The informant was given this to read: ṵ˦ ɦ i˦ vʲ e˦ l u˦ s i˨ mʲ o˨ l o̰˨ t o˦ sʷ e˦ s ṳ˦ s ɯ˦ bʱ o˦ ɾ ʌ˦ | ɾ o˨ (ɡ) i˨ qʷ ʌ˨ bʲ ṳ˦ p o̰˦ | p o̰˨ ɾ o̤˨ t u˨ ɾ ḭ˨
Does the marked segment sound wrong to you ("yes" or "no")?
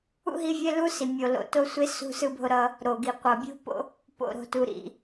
no